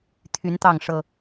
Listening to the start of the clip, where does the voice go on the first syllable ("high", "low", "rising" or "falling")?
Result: rising